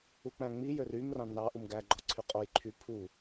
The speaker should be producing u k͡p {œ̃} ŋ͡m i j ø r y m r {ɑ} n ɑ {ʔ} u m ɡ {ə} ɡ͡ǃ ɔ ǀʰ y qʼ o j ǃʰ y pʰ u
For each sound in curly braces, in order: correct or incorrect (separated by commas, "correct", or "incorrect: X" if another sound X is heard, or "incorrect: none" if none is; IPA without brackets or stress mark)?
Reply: incorrect: æ̃, incorrect: ɑ̃, correct, incorrect: æ